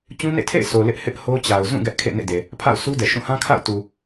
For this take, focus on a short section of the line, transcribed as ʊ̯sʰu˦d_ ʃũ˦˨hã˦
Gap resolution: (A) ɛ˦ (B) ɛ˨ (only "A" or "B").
B